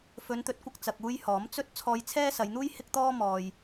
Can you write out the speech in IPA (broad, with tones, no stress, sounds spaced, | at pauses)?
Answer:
f ɵ˨˧ n t̪ ɵ˨˥ t̚ kʷ ɐ˧ k̚ t͡s ɐ˧ k̚ uː˥ j h ɔː˨˥ m t͡s ɵ˥ t̚ t͡sʰ ɔː˧ j t͡sʰ ɛː˥ s ɐ˨˧ j n̪ uː˥ j h ɪ˥ k̚ t̪ ɔː˥ m ɔː˨ j